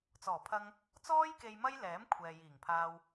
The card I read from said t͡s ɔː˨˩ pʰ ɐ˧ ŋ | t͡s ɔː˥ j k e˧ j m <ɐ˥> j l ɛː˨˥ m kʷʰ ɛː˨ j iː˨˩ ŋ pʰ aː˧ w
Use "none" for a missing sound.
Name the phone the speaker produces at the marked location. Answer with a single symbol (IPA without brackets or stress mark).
ɐ˥